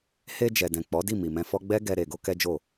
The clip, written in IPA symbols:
h e˧ d͡ʒ ɛ˨ d ɛ̃˨ k͡p ɔ˨˦ d i˦˨ m i˨ m ɛ̃˧ f ɔ˦ ɡ͡b ɛ˦ ɡ ɛ˧ ɾ e˧ ɡ o˦ k ɛ˦ d͡ʒ o˦˨

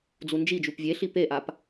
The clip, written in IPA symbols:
d͡z u n d͡ʒ i d͡ʒ u p vʲ e ɬ i p e ʔ a p

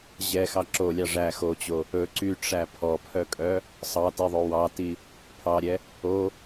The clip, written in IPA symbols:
ʑ ɛ x ɑ ǁ o lʲ ɑ ʐ æ x o t͡ɕ o | ɵ ǀ y ʈ͡ʂ æ pʰ ɔ pʰ œ kʼ œ | sˤ ɑ t i ðˤ o w ɑ t i | pʰ ɑ ɾʲ ɛ | o

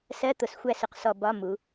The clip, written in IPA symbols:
s ɜ˧˥˧ t̪ ʊ˩˧ s xʷ æ˧ s ʊ˩˧ q s ɔ˧ b ɒ˧˥˧ m u˩˧

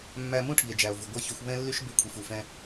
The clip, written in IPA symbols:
mː æ˧ m ũ˦ ʈʰ i˨ e̯ d͡ʒ æ˨ o̯ v u˨ ɡʷ e˦˨ ç y˧ xʷ β ɛ̃˦ lː y˦ ʃ b e˧ kʷʰ i˨ f u˨ f ɛ̃˦

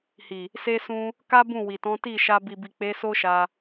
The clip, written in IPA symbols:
h i˨ | s e˧ s ũ˧ | k a˦ b ũ˦˨ w i˨ t ɔ̃˨˦ t i˦˨ ʃ a˧ b i˨ b i˨ k͡p e˨˦ s o˦ ʃ a˧

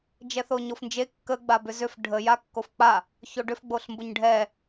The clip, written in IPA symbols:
d͡ʒ ɛ θ o ɲ o f n d͡ʒ e kː ə ɡ͡b a b ʏ z ʏ f ɖʱ ə j a kː o f k͡p a | ç o ɖ ʏ f ɡ͡b o ɬ m b ʊ ɲ ɖʱ ɛ

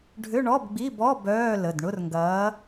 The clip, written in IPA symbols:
ɖʱ ʏ˧˥˧ ɳ ɔ˧˥˧ b ɡ͡b i˧˥˧ b ɔ˧˥˧ b œː˧˥˧ l ə˩˧˩ d ɳ ʊ˧˥˧ r ŋ ɡ ɐː˨˥

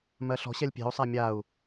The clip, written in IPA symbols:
m ɜ ɬ ɔ̤ ɕ ɛ lʲ pʲ e̤ u̯ sˤ a mʲ a u̯

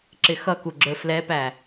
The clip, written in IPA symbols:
ǁ ɪ x ʌ k u ɡ͡ǁ ə˞ f l ɛ p æ

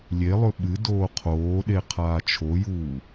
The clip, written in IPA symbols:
lʲ e lˠ ɵ ɓ ɨ d oː qʰ oː ɗ e qʰ aː t͡ʃʰ o j uː

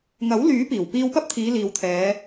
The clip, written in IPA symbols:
ŋ ɐ˨˥ w l yː˨˥ p iː˨˩ w p iː˧ w p ɐ˥ p̚ t̪ʰ iː˨˧ l iː˨ w t̪ʰ ɛː˨˧

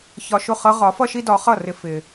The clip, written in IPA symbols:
ç ɒ˧ ʃ ʊ˥˩ χ ʌ˥ ʁ ɒ˩˥ f ʌ˥ ʃ i˥ d ɒ˩˥ χ ʌ˥˩ r ɪ˧ f ɪ˩

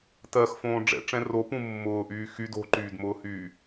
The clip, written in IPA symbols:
t ɜ x f õː ɖ͡ʐ ɛ̰ ʈ͡ʂ ɛ̃ r o p ũ mː ʊː ʔ yː x y d o̤ ǃ yː d m ʊː h yː

